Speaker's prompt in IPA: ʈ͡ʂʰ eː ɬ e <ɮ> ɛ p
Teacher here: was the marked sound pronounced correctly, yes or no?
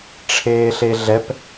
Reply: yes